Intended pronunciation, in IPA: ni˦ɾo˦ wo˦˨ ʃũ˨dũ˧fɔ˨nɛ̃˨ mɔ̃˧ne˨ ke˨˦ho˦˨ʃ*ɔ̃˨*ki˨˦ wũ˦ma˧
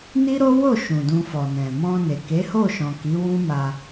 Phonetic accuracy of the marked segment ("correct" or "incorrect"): correct